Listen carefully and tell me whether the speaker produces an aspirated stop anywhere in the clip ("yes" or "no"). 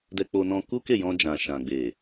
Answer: no